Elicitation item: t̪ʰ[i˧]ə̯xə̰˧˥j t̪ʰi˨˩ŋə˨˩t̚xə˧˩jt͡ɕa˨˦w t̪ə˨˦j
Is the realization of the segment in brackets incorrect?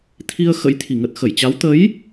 no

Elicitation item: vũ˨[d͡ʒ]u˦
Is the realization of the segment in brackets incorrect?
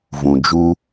no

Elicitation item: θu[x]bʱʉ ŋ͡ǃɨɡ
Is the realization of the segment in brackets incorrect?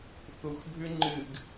no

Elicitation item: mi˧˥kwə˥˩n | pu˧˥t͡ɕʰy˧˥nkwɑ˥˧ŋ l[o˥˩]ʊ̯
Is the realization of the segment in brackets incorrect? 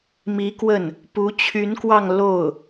no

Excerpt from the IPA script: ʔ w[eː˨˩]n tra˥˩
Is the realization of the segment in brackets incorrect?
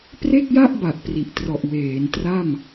yes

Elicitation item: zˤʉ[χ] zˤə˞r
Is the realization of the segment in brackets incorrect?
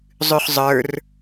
no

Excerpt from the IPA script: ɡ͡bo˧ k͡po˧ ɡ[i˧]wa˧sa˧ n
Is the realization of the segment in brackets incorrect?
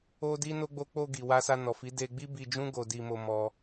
yes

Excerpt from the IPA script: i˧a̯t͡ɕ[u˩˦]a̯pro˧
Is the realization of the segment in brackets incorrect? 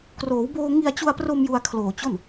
yes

